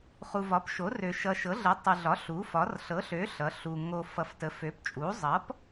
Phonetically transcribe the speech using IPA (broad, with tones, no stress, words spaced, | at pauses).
χu˨vɒ˩˥pʃo˩˥rø˨ ʃʌ˨ʃɤ˩˥ɮə˩˥ tˤə˨ɮɒ˩˥ ɬu˩˥fɒ˩˥r ɬɤ˩˥ɬø˩˥ ɬʌ˩˥ɬu˨ ŋo˨ fʌ˨ftə˩˥fø˩˥pt͡ʃʼu˩˥ zˤʌ˩˥p